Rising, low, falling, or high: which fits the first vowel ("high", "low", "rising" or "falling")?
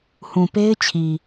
low